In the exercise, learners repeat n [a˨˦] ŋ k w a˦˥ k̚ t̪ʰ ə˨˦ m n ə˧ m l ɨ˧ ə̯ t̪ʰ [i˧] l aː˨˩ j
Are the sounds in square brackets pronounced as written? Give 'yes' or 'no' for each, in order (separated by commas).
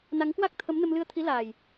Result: yes, no